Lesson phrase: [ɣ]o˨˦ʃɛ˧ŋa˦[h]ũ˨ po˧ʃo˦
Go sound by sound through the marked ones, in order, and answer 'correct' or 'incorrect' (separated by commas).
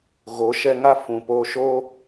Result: correct, incorrect